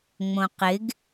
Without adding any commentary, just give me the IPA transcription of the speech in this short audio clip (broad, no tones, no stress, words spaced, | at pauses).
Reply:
ŋ͡mõqɪɡ